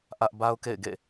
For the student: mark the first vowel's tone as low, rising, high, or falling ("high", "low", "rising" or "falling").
high